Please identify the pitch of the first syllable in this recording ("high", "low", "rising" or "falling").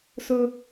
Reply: high